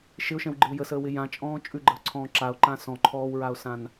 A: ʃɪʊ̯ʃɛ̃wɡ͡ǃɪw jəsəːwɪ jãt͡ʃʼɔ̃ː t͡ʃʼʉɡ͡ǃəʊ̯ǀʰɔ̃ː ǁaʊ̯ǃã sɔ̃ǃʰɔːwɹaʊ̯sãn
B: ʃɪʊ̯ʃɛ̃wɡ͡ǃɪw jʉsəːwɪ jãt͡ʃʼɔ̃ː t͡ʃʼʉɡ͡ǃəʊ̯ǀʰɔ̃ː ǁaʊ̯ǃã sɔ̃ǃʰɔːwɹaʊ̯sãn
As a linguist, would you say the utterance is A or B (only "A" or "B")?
A